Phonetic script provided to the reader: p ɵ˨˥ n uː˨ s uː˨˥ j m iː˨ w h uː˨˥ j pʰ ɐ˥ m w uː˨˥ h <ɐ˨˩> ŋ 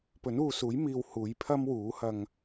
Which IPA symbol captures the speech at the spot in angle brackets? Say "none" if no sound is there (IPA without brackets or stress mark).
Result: ɐ˧